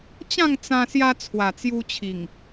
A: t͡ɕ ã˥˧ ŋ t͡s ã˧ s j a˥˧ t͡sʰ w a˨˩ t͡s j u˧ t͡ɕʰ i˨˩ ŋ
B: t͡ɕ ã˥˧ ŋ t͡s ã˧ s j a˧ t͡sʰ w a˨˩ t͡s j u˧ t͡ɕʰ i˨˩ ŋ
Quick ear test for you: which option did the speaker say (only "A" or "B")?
B